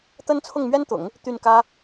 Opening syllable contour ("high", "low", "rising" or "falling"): high